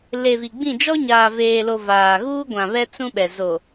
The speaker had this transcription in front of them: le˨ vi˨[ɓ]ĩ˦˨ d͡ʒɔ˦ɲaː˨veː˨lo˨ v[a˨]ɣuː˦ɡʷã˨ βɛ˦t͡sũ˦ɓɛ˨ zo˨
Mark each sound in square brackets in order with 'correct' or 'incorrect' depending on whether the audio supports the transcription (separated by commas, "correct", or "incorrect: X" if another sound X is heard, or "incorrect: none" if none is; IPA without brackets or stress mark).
incorrect: ɡ͡b, incorrect: aː˨